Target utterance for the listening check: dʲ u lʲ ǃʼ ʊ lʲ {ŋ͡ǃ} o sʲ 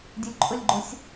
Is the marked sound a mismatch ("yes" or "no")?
yes